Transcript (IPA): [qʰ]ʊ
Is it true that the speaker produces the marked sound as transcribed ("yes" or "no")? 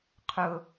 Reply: yes